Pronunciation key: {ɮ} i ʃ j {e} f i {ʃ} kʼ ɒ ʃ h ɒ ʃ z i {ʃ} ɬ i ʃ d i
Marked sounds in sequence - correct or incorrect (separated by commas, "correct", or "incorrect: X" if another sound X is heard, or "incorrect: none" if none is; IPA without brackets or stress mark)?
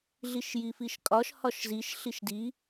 correct, incorrect: i, correct, correct